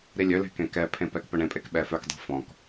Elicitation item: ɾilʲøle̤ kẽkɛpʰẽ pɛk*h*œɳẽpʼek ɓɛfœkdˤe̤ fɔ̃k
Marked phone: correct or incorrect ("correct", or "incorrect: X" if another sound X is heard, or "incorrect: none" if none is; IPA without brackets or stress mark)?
incorrect: p